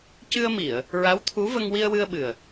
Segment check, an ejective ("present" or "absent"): absent